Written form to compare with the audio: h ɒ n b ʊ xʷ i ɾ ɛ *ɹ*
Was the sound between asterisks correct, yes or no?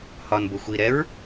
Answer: yes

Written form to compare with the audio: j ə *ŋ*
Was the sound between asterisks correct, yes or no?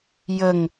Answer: yes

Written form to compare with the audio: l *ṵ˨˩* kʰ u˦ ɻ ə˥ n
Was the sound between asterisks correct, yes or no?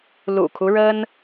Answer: yes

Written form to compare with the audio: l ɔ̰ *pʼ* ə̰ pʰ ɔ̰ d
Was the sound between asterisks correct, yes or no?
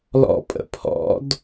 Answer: yes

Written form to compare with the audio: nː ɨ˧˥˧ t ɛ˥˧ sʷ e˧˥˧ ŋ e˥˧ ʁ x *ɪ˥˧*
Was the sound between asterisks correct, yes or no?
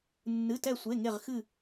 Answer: no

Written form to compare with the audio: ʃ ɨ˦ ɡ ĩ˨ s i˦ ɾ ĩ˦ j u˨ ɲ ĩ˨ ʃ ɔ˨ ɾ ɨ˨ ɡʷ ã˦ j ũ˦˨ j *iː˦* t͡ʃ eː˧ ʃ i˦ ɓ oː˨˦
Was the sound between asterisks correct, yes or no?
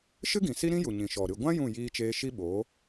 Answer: no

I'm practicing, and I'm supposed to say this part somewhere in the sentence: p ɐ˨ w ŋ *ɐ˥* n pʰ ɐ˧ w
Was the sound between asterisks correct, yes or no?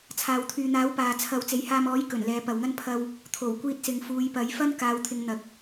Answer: yes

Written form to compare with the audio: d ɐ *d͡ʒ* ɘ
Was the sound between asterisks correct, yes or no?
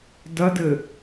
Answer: no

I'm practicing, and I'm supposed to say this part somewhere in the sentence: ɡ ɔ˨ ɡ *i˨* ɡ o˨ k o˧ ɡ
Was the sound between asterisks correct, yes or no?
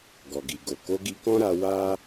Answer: yes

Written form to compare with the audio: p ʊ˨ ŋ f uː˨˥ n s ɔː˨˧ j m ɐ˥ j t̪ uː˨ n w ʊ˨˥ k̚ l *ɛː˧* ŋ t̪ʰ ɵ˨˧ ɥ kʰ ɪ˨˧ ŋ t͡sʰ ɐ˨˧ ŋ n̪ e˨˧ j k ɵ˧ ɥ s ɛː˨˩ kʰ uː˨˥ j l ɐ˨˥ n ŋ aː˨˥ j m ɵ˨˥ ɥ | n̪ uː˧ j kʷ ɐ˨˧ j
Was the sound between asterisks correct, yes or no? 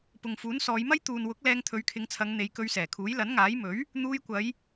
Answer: yes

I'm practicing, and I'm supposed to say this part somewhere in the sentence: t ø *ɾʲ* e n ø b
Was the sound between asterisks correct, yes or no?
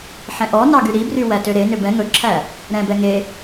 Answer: no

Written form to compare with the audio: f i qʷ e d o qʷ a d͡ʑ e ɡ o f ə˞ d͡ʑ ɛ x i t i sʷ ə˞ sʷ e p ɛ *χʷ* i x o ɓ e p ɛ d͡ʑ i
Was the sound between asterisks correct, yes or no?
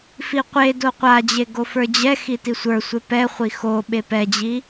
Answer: yes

